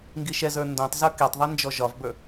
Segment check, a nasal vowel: present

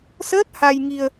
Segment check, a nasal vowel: absent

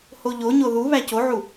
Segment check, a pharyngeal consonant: present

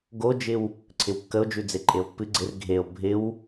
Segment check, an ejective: present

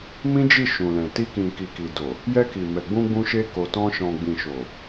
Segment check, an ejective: absent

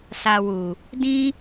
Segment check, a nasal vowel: present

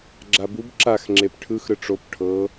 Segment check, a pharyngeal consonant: absent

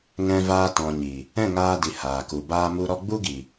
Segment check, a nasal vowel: present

